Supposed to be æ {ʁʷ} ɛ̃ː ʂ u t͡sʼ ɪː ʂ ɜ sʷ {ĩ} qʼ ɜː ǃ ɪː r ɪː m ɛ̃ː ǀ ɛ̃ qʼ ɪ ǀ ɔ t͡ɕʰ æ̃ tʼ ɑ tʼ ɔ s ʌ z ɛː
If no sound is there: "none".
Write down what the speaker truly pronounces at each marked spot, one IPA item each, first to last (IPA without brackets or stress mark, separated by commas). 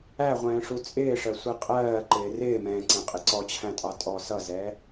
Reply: ʁʷ, i